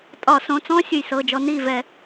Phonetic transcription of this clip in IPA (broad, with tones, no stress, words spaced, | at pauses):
tʼɒ˧˩˧sõ˩˧˩ t͡sɔ̃˦˥ sʲɨ˧˩jsɤ˩˧˩d͡ʒɔ˨˦ ni˥˩vɛ˧˩˧